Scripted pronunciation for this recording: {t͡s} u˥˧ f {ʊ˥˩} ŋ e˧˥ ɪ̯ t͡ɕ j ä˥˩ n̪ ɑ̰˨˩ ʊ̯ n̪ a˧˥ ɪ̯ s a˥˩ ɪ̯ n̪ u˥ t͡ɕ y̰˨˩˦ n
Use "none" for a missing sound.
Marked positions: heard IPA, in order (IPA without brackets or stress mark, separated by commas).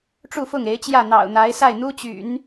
ʈ͡ʂ, ʊ˥˩